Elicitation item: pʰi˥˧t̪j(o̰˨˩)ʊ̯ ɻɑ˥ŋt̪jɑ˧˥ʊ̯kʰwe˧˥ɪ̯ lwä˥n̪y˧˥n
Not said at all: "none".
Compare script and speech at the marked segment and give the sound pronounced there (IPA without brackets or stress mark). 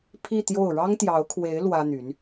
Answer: o˥˩